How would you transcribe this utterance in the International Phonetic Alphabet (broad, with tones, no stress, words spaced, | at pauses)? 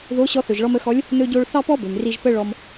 ðo˧˥ ɕɔ˧θɵ˩ʒɭɔ˧m ə˧xɔ˧˥lʲ | nɵ˧ɟo˧ɭ θɑ˥pɔ˥bø˩m ri˧ʒpə˥ɭɔ˧m